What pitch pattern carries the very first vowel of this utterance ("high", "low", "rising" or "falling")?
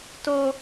high